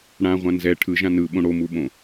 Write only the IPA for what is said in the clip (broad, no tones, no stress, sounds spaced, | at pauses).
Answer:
ɽ ã ʁʷ ã n z ɛ ʈʰ ɯ ʒ ã n ɯ ɓ õ ɽ o m u ɓ õ